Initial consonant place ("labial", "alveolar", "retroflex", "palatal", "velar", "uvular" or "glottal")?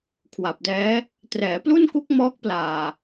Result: velar